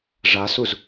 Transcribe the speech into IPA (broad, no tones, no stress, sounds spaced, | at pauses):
ʐ a s u z